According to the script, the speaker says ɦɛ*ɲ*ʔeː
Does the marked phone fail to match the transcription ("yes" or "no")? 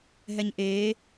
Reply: no